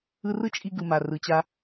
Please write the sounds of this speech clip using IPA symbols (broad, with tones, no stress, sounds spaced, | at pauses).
ɯ˧ r ɯ˦ t͡ʃʼ i˧ ɡ ɯ˨ m a˨ r ɯ˨ t͡ɕ a˧